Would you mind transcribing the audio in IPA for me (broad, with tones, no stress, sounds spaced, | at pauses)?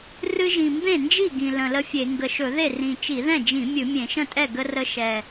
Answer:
r ɨ˦ ʒ ĩ˨˩ m b ẽ˥˩ n d͡ʒ i˥˩ ɡ ĩ˨˩ l ə̃˨˩ l ə˦ fʲ e˧˩˧ ŋ ɡ ə˨˩ ʃ ɵ˧˩˧ ð e˥˩ r ĩ˨˩ t͡ʃ i˧˩˧ ð ɛ̃˥˩ d͡ʒ ĩ˧˩˧ mʲ ɨ˧˩˧ mʲ ẽ˧˩˧ ʃ ə̃˥˩ tʼ ɛ˥˩ ɡ ə˦ r ə˦ ʃ ɛ˨˩